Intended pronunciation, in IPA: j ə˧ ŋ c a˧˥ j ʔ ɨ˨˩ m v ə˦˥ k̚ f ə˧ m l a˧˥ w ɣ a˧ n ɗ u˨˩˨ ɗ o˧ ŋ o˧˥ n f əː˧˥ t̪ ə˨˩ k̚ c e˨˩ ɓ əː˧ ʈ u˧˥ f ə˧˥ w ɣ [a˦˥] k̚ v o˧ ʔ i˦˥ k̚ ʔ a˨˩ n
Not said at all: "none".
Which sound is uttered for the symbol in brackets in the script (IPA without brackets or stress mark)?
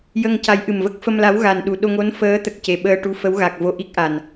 a˨˩